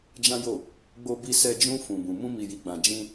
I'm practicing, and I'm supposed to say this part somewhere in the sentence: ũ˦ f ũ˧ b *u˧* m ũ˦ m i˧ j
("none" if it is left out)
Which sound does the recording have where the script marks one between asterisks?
ũ˧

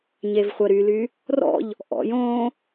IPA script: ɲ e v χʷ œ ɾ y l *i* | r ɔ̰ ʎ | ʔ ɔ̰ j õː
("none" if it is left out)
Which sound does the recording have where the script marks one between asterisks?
y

